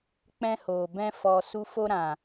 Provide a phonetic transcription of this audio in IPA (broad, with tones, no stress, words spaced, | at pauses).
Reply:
k͡pɛ̃˦hoː˨ bɛ̃˦ fɔ˧su˦ fo˦ɾã˨